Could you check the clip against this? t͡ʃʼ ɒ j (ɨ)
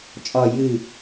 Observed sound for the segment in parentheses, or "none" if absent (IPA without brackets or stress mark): ɨ